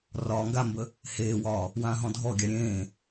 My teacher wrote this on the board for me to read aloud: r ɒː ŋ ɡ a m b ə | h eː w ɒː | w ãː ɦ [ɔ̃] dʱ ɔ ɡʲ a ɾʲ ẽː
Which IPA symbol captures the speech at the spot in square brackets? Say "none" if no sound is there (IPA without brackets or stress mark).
ɔ̃